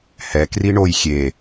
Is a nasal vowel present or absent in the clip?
absent